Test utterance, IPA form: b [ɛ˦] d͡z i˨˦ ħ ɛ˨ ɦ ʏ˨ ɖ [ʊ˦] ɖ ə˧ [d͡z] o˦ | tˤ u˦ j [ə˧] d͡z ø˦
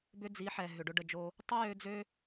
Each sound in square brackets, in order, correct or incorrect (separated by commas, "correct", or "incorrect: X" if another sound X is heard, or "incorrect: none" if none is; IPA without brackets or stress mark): incorrect: ʏ˦, correct, incorrect: d͡ʒ, incorrect: ø˧